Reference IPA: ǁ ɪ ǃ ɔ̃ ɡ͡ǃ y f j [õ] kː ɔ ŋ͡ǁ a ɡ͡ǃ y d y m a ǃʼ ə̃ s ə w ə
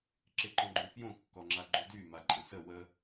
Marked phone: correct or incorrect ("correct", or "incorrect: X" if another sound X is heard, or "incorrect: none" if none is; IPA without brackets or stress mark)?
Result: correct